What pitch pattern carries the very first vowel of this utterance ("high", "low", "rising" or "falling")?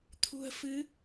low